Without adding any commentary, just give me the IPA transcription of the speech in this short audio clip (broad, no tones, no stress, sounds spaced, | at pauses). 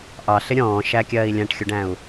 ʔ ɑ ɬ ɪ ɾʲ ɔ̃ː ʃ æ kʲ ɜː i̯ lʲ æ̃ ʈ xʲ u ɖ æ̃ u̯